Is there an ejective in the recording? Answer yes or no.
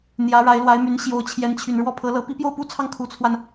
no